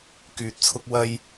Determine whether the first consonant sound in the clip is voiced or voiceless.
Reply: voiceless